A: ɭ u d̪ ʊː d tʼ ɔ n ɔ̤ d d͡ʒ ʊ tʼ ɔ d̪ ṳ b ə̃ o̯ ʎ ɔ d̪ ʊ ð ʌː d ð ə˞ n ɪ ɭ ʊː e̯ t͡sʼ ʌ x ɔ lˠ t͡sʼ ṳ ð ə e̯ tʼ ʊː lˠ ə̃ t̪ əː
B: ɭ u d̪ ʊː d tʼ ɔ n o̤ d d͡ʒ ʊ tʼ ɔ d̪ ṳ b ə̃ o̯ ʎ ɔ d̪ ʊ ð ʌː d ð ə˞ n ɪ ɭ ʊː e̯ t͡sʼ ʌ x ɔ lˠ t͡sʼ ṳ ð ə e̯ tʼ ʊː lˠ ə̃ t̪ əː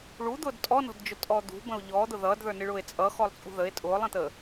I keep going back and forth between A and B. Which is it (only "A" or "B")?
A